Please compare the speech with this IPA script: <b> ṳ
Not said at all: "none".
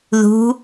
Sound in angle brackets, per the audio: ð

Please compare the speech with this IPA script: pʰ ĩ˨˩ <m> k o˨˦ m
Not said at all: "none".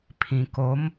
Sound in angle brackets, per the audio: none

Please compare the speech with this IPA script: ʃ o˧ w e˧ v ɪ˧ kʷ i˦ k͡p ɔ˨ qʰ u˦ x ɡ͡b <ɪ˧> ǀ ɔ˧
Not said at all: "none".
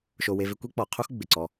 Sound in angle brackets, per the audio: ɪ˨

